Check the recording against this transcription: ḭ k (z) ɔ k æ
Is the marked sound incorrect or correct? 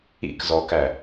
correct